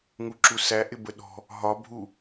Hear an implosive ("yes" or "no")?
yes